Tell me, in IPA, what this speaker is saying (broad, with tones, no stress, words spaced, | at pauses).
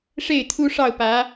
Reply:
ʂe˥˩ɪ̯t̪ʰu˥ʂɑ˥˩ʊ̯pä˧˥